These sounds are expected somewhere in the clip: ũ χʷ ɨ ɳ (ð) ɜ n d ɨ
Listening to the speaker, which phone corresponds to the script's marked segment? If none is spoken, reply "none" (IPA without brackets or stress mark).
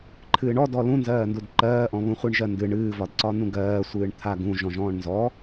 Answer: ʒ